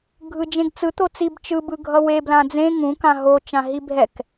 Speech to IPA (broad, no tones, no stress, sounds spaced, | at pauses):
ɡʱ ɯ d͡ʒ ẽ ɡ t͡s ɯ t̪ o t͡s i b t͡ʃ ɯ b ɯ ɡʱ ʌ w e b l ã d͡z ẽ ŋ ũ k ã ɦ o t͡ʃ ã ɦ i bʱ ɛ k